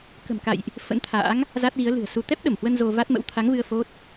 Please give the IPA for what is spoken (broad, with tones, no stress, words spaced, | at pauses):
kə̤˨˩mka̰˧˨jʔ | fə̰˧˥nt̪ʰa̰ː˧˥ŋ | za˦˥t̚ɣi˨˦ə̯ lɨ̤˨˩ə̯su˧ t̪ɛ˦˥p̚ɗə˧˩mhwə˧n zo˧va˦˥t̚mə̰˧˥w t̪ʰa˨˦ŋvɨ˧ə̯ fo˦˥t̚